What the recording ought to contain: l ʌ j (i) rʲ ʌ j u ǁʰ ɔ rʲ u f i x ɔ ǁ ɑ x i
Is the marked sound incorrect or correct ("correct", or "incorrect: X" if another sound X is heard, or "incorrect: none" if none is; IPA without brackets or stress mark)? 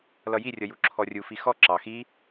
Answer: correct